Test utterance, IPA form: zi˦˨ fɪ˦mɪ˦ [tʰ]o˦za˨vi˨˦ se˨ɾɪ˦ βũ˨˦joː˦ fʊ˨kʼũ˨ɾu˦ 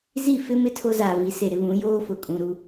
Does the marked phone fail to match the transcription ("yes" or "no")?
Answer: no